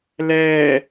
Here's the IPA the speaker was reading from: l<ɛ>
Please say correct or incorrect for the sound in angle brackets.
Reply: incorrect